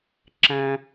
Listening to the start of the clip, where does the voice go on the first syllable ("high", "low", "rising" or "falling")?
low